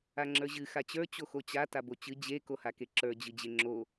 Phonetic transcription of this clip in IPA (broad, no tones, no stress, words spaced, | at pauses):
aŋ͡ǁə˞ʑɨ xat͡ɕə˞ t͡ɕoxot͡ɕa tabot͡ɕɨ d͡ʑe kohakeǁə˞ d͡ʑɨd͡ʑeŋ͡ǁo